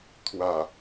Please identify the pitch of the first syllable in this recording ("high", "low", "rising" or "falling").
low